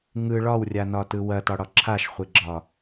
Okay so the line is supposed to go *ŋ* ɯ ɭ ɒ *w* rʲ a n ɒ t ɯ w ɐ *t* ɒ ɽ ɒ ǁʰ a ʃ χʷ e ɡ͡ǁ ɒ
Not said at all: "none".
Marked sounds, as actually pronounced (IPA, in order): ŋ, w, t

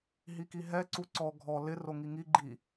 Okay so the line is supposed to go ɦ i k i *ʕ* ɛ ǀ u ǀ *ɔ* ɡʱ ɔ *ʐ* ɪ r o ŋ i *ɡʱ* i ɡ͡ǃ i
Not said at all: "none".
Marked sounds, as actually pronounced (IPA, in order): ɦ, ɔ, l, ŋ

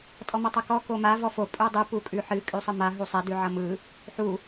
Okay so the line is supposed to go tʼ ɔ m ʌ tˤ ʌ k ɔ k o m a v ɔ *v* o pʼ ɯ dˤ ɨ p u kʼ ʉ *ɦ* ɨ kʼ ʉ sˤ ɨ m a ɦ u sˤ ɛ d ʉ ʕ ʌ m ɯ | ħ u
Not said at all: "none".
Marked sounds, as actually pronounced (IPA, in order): f, ħ

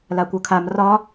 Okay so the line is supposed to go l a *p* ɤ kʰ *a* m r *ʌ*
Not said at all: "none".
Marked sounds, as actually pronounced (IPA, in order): kʷ, a, ɒ

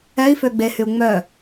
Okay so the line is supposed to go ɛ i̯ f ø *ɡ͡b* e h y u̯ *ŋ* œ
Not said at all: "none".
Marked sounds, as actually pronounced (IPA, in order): ɡ͡b, ŋ͡m

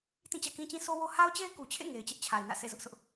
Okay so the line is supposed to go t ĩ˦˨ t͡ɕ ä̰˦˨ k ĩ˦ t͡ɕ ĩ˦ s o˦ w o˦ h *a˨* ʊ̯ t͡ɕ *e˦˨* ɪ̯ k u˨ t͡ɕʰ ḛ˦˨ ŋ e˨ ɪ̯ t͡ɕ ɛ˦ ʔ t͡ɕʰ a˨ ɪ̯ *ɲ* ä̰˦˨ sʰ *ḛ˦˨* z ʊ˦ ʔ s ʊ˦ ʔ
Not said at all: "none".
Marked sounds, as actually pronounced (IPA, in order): a˦, e˦, n, ḛ˦˨

